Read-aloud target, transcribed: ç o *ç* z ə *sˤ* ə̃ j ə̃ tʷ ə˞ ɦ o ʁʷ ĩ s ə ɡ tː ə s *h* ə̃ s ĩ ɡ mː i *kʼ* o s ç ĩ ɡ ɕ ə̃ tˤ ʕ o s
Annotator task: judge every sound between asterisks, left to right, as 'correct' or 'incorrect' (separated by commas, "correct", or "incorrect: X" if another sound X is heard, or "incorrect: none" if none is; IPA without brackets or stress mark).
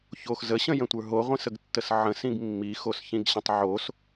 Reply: incorrect: x, incorrect: ɕ, incorrect: ʕ, incorrect: x